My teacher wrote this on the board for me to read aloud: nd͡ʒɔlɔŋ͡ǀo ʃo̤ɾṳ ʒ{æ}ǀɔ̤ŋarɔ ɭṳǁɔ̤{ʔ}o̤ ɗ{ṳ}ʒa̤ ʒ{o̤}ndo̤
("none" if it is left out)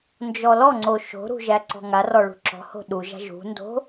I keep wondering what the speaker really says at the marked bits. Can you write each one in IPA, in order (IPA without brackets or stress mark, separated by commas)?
æ, h, u, ṳ